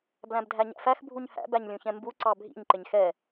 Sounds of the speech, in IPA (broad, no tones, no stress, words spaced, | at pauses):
blæ̃bdʱæɲæ̰fæx bʱuɲhæ̰ bæɲlʲũçɛ̃mbu ǀɑbʱḭɲ ǃɪɲxɛ